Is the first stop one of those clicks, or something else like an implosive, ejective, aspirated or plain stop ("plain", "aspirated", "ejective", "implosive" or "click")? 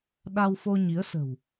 implosive